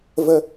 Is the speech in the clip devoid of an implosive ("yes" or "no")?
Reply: yes